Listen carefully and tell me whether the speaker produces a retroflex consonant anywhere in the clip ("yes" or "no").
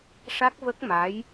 yes